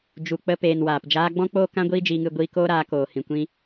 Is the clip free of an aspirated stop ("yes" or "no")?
yes